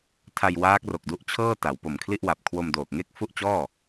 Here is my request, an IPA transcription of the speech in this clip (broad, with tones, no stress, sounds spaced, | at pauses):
tʰ a˧ j w aː˦˥ k̚ r o˨˩ k̚ d u˦˥ ʔ t͡ɕʰ ɤː˥˩ t a˩˦ w p o˨˩ m kʰ l i˥˩ ʔ w a˨˩ p̚ kʰ w o˧ m d oː˨˩ k̚ ŋ e˥˩ k̚ f u˥˩ ʔ t͡ɕ ɔː˥˩